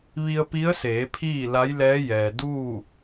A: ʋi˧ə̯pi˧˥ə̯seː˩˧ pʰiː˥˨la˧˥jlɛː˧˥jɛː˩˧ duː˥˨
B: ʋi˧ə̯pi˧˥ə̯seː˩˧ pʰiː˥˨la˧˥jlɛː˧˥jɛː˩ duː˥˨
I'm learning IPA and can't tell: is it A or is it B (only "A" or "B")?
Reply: B